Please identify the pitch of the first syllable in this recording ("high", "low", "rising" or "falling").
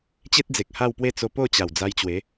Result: high